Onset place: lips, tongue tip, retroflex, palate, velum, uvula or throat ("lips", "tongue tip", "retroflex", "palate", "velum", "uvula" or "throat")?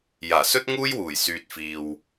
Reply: palate